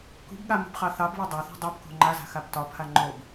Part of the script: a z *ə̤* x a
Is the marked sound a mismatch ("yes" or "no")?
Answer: yes